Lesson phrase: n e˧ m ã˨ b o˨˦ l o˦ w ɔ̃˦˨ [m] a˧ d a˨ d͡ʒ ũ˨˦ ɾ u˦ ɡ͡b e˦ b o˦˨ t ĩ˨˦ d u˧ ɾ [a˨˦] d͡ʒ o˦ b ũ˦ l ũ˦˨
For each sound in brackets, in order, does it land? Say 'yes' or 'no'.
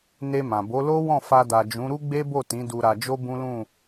no, no

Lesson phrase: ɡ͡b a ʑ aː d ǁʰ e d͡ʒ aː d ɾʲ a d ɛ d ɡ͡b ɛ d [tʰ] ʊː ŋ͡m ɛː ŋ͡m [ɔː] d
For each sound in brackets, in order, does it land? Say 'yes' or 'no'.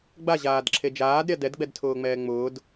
yes, no

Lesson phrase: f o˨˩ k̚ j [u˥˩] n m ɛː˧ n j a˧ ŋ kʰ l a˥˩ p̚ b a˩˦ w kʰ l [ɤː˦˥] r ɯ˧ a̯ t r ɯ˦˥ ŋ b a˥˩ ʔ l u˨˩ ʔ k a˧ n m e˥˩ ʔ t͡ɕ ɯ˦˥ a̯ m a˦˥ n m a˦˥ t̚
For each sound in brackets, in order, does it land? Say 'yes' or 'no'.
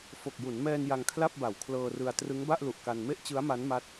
no, no

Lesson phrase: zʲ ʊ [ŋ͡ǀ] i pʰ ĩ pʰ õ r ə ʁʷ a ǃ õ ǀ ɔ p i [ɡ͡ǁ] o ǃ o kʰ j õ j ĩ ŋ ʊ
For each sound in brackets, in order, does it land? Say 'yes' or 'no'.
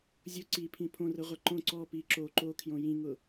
no, no

